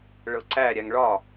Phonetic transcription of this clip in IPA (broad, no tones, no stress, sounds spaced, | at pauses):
ɭ ɤ ǀ æ ɾʲ æ ŋ ɭ ɒ